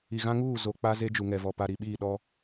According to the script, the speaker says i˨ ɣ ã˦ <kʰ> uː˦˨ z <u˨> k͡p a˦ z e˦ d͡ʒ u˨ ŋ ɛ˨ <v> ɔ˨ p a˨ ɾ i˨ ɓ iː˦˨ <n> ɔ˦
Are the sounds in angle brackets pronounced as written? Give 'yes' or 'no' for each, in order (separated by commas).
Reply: no, no, yes, no